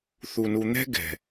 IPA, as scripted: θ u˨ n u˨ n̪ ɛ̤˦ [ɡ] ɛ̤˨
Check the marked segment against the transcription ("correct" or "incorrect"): correct